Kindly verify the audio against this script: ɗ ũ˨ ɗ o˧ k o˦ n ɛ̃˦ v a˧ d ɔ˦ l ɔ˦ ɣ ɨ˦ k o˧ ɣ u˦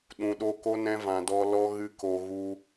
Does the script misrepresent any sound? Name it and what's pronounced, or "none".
a˧ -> ã˧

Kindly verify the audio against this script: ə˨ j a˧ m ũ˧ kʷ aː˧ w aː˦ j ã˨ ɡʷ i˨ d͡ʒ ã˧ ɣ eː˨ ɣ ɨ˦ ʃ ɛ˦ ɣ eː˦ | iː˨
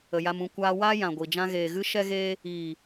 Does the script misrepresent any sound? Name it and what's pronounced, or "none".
none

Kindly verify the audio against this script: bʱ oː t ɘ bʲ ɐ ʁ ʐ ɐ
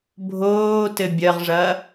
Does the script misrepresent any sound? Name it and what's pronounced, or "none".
none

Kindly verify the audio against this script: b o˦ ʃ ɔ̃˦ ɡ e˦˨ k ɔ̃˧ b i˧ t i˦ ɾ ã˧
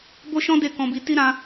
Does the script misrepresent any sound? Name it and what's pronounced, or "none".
ɡ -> d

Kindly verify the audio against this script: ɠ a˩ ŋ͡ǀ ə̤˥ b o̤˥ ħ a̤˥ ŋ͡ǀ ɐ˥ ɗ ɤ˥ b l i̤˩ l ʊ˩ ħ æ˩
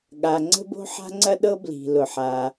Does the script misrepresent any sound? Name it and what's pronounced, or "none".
æ˩ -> a˩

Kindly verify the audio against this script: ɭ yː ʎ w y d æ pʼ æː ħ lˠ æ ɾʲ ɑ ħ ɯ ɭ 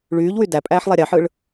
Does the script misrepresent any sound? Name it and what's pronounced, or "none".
none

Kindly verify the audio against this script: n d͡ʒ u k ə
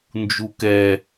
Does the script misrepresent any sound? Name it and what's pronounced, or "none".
ə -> ɛ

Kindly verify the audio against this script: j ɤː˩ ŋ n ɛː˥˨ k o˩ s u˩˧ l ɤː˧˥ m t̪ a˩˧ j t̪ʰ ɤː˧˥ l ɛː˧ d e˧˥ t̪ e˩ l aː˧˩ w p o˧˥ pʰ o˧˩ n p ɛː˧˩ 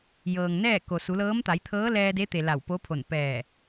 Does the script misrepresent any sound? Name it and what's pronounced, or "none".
aː˧˩ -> a˧˩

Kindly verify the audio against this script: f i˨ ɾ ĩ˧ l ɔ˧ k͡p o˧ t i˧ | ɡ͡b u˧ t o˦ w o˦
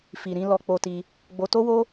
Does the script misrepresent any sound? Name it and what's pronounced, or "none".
u˧ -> o˧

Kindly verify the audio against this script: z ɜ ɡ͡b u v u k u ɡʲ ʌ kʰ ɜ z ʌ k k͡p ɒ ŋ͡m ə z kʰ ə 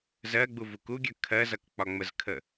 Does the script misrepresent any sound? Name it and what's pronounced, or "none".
none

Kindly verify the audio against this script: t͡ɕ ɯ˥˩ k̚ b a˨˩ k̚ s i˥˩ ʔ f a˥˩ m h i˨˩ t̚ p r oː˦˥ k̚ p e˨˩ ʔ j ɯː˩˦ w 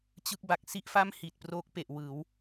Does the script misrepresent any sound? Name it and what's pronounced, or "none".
j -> w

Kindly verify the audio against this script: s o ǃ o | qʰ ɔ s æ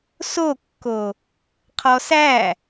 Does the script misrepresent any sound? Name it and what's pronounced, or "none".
ǃ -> kː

